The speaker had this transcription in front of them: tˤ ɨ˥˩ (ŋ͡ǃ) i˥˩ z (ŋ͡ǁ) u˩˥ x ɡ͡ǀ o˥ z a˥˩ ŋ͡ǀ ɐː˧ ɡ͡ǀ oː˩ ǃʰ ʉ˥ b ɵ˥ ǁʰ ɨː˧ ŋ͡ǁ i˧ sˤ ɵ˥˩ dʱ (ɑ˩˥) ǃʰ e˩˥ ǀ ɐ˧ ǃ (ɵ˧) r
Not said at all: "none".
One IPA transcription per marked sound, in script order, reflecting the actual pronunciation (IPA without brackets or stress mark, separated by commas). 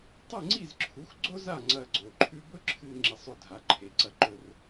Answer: ŋ͡ǀ, ǁʰ, a˩˥, ɵ˧